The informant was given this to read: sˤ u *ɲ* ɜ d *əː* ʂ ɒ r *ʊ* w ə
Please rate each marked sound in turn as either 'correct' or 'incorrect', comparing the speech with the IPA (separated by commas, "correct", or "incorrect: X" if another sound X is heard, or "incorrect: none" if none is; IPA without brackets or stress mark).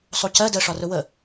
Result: incorrect: c, correct, correct